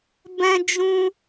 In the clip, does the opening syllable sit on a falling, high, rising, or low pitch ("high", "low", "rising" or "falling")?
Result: high